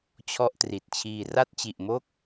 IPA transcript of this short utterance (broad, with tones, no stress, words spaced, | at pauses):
t͡ɕʰɔ˥˩ʔtri˨˩t̚t͡ɕʰiː˧ ra˥˩t̚t͡ɕi˨˩ʔmo˥˩k̚